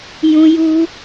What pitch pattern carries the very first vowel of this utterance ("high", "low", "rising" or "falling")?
high